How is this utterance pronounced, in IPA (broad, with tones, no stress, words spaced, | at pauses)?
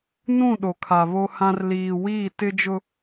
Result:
nũ˦˨ ɗo˨kʰa˨βo˦hã˦r liː˨wiː˦˨tɪ˦d͡ʒʊ˦